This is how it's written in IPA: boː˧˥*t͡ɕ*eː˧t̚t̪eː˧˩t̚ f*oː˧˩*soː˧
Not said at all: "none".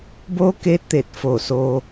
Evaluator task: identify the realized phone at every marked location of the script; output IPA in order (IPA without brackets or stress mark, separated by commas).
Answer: k, oː˧˩